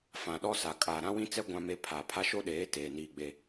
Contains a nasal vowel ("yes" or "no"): yes